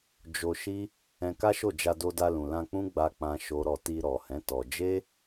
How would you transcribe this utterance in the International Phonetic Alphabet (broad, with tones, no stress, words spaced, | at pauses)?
d͡ʒo˧ʃi˦ | ɛ̃˧ka˦ʃo˦˨ d͡ʒa˧do˧da˧ lũ˨lã˧k͡pũ˦ ɡ͡ba˦k͡pã˦ʃo˦ɾɔ˦˨ ti˧ɾɔ˨hɛ̃˨˦ tɔ˧ d͡ʒe˦